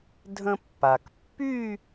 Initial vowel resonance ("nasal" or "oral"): nasal